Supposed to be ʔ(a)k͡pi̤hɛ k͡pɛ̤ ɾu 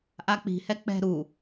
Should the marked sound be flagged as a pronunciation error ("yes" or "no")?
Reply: no